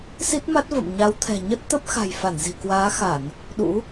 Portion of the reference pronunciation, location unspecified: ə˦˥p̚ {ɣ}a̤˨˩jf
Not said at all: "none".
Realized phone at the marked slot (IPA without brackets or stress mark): x